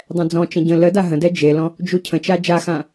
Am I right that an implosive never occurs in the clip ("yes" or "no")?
yes